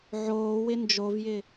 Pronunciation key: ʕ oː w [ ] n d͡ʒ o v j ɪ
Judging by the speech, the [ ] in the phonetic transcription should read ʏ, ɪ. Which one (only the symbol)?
ɪ